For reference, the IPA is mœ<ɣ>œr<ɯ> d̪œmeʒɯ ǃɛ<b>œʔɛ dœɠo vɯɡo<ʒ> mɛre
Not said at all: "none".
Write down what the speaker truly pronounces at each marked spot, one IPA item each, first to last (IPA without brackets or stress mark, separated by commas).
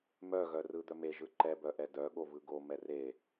ɣ, ɯ, b, none